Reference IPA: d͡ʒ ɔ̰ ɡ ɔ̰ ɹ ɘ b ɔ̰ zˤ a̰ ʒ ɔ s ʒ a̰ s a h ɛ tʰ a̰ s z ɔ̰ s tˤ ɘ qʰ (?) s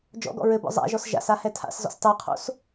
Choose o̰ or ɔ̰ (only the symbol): o̰